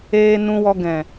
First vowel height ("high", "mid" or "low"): mid